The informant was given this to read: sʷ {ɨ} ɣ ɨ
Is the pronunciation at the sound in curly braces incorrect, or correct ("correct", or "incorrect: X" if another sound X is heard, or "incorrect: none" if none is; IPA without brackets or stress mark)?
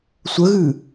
incorrect: ə